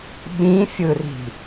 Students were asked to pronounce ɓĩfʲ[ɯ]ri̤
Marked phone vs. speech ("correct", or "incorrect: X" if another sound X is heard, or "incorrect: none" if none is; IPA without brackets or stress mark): correct